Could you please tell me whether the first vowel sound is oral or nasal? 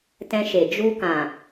nasal